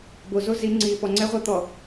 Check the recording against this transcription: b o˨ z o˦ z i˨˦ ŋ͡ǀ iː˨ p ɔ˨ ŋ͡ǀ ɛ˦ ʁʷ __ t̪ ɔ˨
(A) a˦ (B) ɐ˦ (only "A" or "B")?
B